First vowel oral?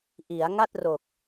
yes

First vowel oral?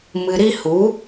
yes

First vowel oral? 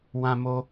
no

